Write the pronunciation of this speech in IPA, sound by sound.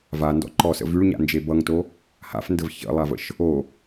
v a n d ɔ̰ ǃ ɔ s ə̰ v y ɭ ɲ a̰ n d͡ʒ e b ʌ ŋ t o | h a̰ f n d ə v ç ə̰ lˠ a v ə̰ ʃ | o

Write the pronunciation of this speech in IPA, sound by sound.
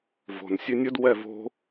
v o̤ n sʲ ʉ nʲ ɵ d w ɛ v o̤

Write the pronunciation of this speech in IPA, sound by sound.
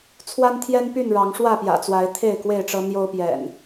t͡sʰ w a˦ n t̪ʰ j ɛ˦ n p y˥˨ n ɻ ɑ˨˦ ŋ ʂ w ä˥˨ p j ä̰˨˩ t͡s w a˨˦ ɪ̯ t̪ʰ e˥˨ ɪ̯ k w e˥˨ ɪ̯ ʈ͡ʂ ɤ˦ n̪ j o˦ ʊ̯ p j ɛ̰˨˩ n

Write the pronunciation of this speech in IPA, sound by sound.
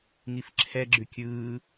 ŋ i f ǁʰ ɛ ɡ͡ǁ ʉ kʲ ɯː

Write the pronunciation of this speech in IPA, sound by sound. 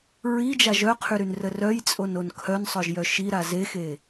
ɹ i d͡ʒ a ʒ œ qʰ y ɾ y n r ə r œ j t͡sʼ o n o n kʰ œ n sˤ œ ʒ j œ ʃ i ɾ a z e x e

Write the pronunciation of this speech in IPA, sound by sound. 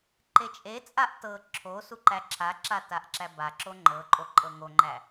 ǃ e t͡ʃʼ e t͡sʼ a ʔ t ɤ ǁʰ o s u ǃ æ ǁʰ a ǁ a t a ʔ ǁ æ b a ǁ o ŋ͡ǃ ɤ ǃʼ o ǃʼ ɤ ŋ o ŋ͡ǃ æ

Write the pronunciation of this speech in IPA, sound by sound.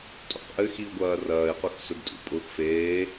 tʼ ṵ q ʔ ɘ x i o̯ ɡʷ ɐː r ɐː e̯ q ʊ x s ʊ d tʼ ṵ pʼ ʊ x f eː

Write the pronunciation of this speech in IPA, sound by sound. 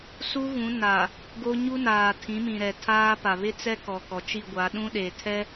s u˦ ɣ ũ˨˦ n a˨ | ɡ o˦ ɲ u˦ n aː˨ tʰ ĩ˨˦ m ĩ˨ ɾ ɛ˨ tʰ aː˦ p a˨ β ɪ˦ t͡s ɛ˦ k ɔ˨ k ɔ˨ t͡ʃ i˦˨ ɡʷ a˨˦ ɗ ũ˦ ɗ e˨ tʰ ɛ˦

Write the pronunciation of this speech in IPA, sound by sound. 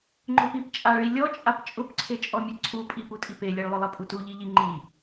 ŋ͡ǃ ʊ p i p t͡ʃʼ a ɭ i lʲ ɔ t͡ʃʼ a p t͡ʃʼ ʊ p ǀʰ e t͡ʃʼ ɔ mʲ e ǀʰ u pʼ i p u tʼ i p e lʲ e ɭ lˠ ʊ lˠ ɛ pʼ u t u ʎ i ʎ i ŋ͡ǃ i

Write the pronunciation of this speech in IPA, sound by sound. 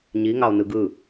ɲ i ŋ ɑ o̯ n ɯ ɡ ɯ

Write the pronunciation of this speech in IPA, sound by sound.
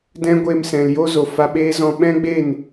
d ɛ̃˦ ɡʷ eː˧ m s ɛ̃˨ l j o˦ z o˨ f a˧ ɓ eː˦ z ɔ̃˧ ɓ ɛ̃˦ ɡ͡b e˦˨ n

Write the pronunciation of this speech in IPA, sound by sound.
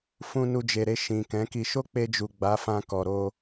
f ũ˧ n u˧ d͡ʒ e˨ ɾ e˧ ʃ ĩ˨ k ɛ̃˨˦ k i˧ ʃ o˦ k͡p e˧ d͡ʒ u˨ ɡ͡b a˨˦ f ã˧ k ɔ˨ ɾ o˧

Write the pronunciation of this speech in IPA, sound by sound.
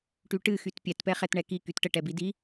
ʈ y ʈ ɨ x y t pʲ ɛ t p ɛ χ ɛ t ɳ ɛ k i k y t ʈ ə ʈ ɛ b i d i

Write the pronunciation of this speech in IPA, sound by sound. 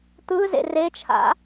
t̪ ɯ z ḛ r e t͡ʃʰ a̰

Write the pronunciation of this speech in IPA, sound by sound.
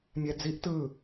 mʲ ɛ d͡z i ʔ t ɯ

